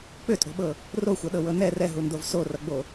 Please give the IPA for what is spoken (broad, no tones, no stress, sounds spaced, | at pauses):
k͡p ʏ tʼ o̤ ɓ ɤ | r o xʷ ʌ ɗ ɤ w ɤ n ɛ r ɛ ɦ u n d o v s o r ʌ ɡ͡b o